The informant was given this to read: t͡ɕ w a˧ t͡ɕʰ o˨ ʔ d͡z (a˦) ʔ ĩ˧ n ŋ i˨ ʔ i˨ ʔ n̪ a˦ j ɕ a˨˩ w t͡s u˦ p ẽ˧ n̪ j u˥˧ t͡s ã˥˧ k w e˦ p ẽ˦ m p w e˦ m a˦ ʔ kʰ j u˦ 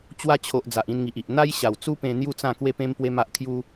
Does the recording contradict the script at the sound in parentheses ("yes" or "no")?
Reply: yes